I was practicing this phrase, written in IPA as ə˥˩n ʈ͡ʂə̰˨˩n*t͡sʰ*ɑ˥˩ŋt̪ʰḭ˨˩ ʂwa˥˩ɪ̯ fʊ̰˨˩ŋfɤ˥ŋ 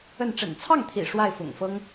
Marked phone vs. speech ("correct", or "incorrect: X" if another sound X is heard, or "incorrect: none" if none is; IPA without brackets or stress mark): correct